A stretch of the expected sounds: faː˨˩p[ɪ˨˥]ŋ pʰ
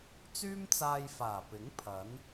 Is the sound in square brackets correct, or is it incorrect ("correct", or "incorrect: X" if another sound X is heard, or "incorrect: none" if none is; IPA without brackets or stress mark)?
correct